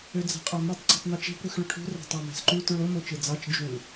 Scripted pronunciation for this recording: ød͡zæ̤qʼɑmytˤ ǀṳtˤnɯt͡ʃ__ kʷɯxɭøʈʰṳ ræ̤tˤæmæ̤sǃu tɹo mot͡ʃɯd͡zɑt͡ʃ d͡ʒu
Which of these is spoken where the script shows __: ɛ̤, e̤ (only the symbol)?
e̤